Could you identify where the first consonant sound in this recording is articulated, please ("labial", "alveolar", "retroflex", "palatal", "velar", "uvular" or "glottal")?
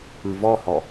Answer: labial